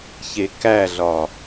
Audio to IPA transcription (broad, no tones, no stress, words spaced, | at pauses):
çekæɮɒ